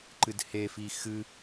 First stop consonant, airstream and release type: click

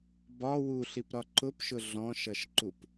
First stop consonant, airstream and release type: plain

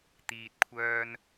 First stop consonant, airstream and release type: plain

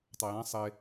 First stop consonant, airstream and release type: plain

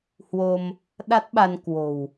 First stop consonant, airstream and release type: implosive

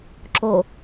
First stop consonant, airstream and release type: click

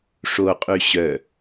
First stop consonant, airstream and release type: ejective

